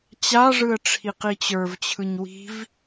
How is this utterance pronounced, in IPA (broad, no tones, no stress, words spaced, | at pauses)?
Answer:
t͡ɕaʐɯə̯ ʈ͡ʂʰiqit͡ɕə˞vt͡ɕʰɯɲ wi̤v